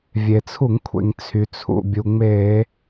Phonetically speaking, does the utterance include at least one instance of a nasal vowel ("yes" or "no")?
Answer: no